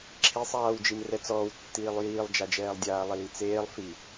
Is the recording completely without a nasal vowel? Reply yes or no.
yes